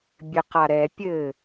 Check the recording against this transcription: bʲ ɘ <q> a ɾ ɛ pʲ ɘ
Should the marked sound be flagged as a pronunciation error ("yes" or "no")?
no